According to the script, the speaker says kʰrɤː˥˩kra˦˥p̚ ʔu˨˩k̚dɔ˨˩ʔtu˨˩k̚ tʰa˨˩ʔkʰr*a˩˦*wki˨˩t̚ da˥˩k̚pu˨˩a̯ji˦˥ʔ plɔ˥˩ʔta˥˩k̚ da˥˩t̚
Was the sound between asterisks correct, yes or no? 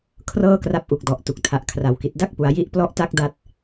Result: yes